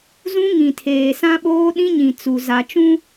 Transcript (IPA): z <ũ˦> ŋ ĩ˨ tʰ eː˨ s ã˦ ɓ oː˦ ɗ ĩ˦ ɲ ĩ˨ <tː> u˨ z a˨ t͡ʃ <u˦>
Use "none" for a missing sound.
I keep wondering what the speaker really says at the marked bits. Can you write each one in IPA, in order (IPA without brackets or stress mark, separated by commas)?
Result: ũ˦, t͡s, ũ˦